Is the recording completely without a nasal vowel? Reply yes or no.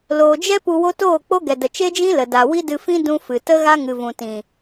no